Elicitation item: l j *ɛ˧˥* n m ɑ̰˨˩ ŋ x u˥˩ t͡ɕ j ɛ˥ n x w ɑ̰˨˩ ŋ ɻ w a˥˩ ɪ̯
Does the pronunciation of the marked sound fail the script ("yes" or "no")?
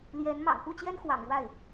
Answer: no